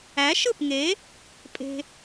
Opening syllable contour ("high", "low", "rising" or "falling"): rising